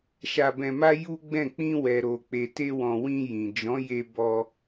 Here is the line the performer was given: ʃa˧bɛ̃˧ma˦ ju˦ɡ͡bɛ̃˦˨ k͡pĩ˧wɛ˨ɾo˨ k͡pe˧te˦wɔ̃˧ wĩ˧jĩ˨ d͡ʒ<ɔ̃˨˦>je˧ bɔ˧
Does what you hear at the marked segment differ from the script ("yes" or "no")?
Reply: no